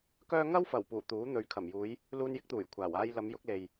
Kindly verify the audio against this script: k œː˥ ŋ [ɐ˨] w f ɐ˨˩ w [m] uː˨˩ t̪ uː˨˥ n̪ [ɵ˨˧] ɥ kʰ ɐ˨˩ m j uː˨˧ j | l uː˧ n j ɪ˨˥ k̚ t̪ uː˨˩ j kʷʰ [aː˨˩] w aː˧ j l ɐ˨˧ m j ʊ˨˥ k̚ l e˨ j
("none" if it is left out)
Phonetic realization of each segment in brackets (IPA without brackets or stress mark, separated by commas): ɐ˥, p, ɵ˨˧, aː˨˩